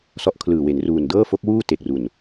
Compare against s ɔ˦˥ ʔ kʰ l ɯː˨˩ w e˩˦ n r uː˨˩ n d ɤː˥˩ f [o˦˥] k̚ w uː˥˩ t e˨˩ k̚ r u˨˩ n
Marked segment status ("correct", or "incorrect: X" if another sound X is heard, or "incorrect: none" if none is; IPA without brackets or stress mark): correct